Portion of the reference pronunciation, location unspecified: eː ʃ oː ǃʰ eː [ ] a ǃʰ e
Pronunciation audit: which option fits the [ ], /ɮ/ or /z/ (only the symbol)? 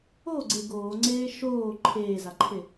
z